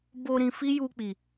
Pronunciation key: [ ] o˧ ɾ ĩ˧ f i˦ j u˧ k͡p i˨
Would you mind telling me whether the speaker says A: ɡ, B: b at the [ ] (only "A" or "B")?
B